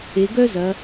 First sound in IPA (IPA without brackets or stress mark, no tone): e